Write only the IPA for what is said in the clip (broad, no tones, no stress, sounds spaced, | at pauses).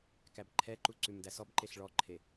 k æ b ǃʰ ɛ ǃ u ǀ ʉ m d æ s ɔ b ǃ e ɬ ɭ ɔ ǃʰ e